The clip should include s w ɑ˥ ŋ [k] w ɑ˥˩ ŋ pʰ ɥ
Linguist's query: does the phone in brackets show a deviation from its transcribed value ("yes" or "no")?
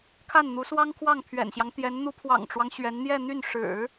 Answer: yes